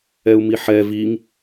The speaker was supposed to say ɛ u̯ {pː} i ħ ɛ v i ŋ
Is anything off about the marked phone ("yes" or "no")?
yes